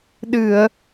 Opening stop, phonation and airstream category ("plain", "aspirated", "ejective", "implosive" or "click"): implosive